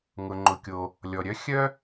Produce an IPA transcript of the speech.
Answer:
ŋ ʊ˩ ŋ͡ǃ ʊ˩ kʲ o˩ | lʲ ɔ˩ ɾʲ œ˥ xʲ œ˥

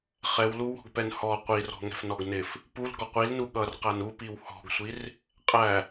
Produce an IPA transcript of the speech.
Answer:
χ ɛ w l u w ɔ̤ ɡ p ɛ n h ɔ qʷ i r ɔ̤ ŋ ɛ̤ f n ɔ ɡ n ɪ f | p u l ɡ ɔ qʷ i l n u ɠ ʌ r q æ n u p i w h ɔ̤ ɡ sʷ i r | qʼ æ

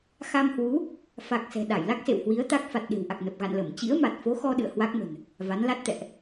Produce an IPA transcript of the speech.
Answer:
x a˧ m h w u˨˦ | f a˨˩ k̚ s ɛ̤˨˩ ɗ a˧˩ j l a˦˥ k̚ s ḛ˧˨ w h w i˨˦ ə̯ t̪ a˦˥ k̚ f a˨˩ t̚ ɗ e̤˨˩ w ʔ a˨˩ k̚ n ə˨˩ p̚ ɣ a̰˧˨ n l ə˧˩ m t͡ɕ ḭ˧˥ ə̯ m a˨˩ t̚ f o˨˦ x ɔ˧ ɗ ɨ̰˧˨ ə̯ h w a˦˥ k̚ m ə̤˨˩ n | v a˨˦ n l a˦˥ t̚ t̪ ɛ̰˧˨ ʔ

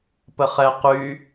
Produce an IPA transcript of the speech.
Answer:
p ə χ ɛ q y

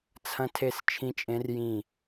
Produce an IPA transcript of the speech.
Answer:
t͡sʰ ɐ̃˧˥ tʰ e˦˨ s t͡ʃʰ ĩ˧˥ t͡ʃʼ ẽ˧˥ r j ĩ˦˨

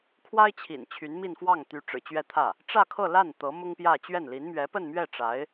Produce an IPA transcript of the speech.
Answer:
kʰ w a˥ ɪ̯ t͡ɕʰ ḭ˨˩ n t͡ɕʰ y˧˥ n m i˥˧ n f w ɑ˥˩ ŋ t̪ y˧˥ ʈ͡ʂ ɻ̩˨˩ t͡ɕ ɥ ɛ˥˧ t̪ʰ ä˥˩ | ʈ͡ʂ ä˥˧ kʰ ɤ˥˧ l a˥˩ n t̪ ɤ˧˥ m ʊ˥ ŋ p j ä˥˧ t͡ɕ ɥ ɛ˥˩ n l i˧˥ n m ɥ ɛ˧˥ p ə˥˧ n m ɥ ɛ˥˩ ʈ͡ʂ a˧˥ ɪ̯

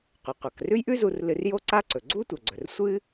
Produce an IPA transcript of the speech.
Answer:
qʷ ɨ˩ qʷ a˩ k r ʉ˥ j ʔ ʉ˥ z u˧ r l ɨ˧ r j o˥ ǀ a˥ ǀ ɵ˩ ɡ͡ǀ u˥ tʷ ɐ˩ ɡ͡ǀ ɵ˩ r sʷ ɨ˥

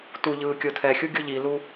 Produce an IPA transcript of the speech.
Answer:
t u ʎ ɯː kʲ o tʰ ɛ xʲ u ɡʲ o ʎ i l u

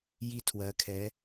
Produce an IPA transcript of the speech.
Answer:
j i˧˩ tʰ w ɜ˩˧ kʰ ɛ˩˧

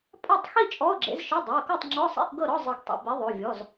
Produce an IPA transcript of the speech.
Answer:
pʼ a˥˨ tˤ x i˥˨ t͡ʃʼ ɔ˧˥˧ ʊ̯ ɡ͡ǁ ḛ˨˥ z ʃ ɯ˧˥˧ dˤ ɤ˩˧˩ ʊ̯ k ɔ˥˨ tˤ ŋ͡ǁ ɔ˧˥˧ sˤ ḛ˧˥˧ ʔ ɡ ɤ˥˨ ɾ ɔ˧˥˧ zˤ ɯ˨˩˦ ɡ tˤ ḭ˩ b i˨˥ ðˤ o˩˧˩ vʲ ɔ˩˧˩ z

